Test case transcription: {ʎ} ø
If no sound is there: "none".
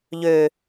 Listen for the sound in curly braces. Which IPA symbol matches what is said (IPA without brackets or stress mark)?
ʎ